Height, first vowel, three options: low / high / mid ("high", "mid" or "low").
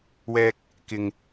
mid